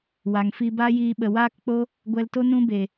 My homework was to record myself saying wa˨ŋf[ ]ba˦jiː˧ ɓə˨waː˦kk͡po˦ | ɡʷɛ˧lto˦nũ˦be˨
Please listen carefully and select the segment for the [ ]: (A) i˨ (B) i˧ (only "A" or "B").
B